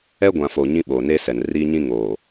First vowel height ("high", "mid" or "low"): mid